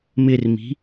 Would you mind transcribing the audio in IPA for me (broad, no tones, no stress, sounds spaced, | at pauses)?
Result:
m ɪ r m i̤